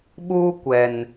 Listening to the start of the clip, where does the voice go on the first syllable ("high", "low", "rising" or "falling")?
high